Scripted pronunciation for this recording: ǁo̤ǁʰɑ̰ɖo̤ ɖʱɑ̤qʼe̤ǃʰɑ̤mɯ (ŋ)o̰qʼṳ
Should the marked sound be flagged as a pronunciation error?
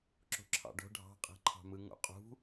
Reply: no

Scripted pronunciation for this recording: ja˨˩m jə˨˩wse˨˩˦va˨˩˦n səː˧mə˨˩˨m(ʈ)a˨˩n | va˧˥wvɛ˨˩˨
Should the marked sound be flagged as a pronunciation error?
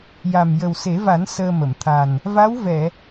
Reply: yes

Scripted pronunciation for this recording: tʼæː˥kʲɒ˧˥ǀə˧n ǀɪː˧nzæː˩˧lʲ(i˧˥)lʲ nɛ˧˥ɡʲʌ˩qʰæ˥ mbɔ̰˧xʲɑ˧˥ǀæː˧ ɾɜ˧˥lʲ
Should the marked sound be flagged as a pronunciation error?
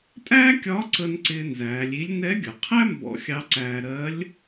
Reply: no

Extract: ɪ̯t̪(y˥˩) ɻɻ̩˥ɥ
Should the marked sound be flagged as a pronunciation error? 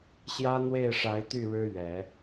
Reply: no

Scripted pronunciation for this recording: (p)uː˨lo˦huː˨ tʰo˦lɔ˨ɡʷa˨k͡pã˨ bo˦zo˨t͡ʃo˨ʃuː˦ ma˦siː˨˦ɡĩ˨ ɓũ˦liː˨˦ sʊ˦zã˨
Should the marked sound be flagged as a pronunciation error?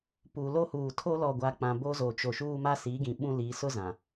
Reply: no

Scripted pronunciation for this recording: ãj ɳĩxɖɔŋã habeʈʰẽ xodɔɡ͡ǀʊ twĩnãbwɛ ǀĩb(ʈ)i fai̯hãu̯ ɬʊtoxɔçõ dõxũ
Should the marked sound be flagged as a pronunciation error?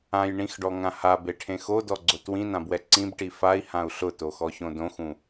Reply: no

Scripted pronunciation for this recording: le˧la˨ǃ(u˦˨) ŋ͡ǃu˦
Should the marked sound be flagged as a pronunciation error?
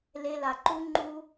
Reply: yes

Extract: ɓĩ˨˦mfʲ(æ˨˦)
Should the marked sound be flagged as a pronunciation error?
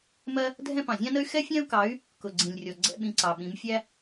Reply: yes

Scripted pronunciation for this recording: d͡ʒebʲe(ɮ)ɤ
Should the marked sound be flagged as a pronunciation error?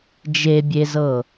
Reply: yes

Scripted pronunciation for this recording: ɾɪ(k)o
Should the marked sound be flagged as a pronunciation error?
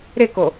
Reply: no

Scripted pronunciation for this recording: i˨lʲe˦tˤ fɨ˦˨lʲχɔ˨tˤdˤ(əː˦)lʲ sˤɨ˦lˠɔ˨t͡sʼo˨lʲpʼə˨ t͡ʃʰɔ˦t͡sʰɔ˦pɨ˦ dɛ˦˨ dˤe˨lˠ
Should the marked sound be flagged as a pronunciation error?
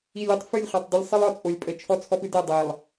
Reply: yes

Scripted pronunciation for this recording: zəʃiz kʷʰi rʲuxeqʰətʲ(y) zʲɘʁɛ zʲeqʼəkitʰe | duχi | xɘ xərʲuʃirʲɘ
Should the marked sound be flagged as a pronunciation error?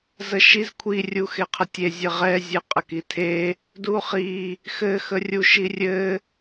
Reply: yes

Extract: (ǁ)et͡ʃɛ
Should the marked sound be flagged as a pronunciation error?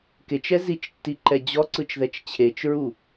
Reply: yes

